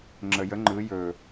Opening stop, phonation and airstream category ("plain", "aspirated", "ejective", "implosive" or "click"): click